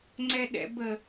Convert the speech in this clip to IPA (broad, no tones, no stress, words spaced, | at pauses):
ŋ͡ǀɛɗɛ̰bə